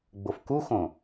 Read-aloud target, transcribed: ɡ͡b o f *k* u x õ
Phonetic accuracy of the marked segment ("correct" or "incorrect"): correct